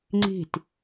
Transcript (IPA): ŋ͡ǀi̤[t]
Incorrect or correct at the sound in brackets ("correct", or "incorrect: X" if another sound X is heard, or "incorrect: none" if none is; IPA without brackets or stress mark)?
correct